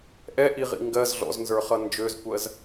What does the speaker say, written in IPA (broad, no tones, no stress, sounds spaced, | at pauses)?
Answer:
ʔ ɛ ʔ i ʁ ḭ ŋ ɡ ɜ z ɮ ɔ̰ z n z ə˞ χ ʌ n d͡ʒ ø z kʷ ɜ z